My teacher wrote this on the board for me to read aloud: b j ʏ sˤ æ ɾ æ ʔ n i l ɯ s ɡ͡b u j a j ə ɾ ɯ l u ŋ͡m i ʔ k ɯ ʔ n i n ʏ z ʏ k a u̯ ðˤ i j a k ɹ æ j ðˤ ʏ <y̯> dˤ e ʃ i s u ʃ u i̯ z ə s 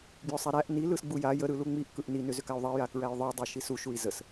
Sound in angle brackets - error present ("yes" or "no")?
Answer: yes